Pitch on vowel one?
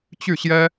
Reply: falling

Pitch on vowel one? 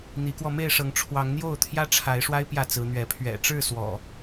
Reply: rising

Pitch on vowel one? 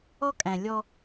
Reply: high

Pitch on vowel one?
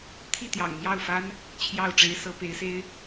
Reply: falling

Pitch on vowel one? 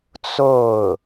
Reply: falling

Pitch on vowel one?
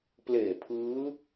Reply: low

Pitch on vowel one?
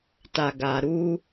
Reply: low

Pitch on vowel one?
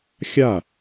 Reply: falling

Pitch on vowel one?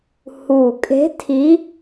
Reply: low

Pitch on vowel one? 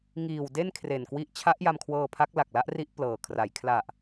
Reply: low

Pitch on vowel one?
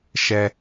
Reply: low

